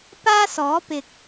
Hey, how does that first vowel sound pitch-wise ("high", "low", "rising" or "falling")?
high